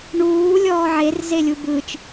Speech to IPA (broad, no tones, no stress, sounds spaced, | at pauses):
ɳ uː lʲ ɔː ʕ e r z e lʲ u b ɯ t͡ʃ